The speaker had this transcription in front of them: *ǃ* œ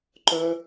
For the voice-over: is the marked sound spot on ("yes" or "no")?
yes